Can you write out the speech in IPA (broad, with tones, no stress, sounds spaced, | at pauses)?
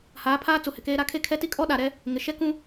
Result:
h aː˨˦ pʰ aː˦ t͡s u˨ h ɪ˨ k eː˦ ɾ a˦ kʰ e˦ kʰ ɛ˦ t i˦ kʼ ɔ˦ ɗ a˨ ɾ ɛ˦ | ŋ ɪ˨ ʃ ɛ˦ k ũ˦